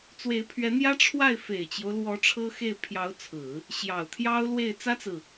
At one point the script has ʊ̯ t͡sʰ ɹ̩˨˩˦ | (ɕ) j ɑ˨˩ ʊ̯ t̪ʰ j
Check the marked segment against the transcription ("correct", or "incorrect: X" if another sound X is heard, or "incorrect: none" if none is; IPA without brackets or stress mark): correct